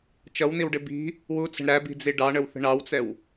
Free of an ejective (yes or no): yes